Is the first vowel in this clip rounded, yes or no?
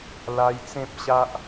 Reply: no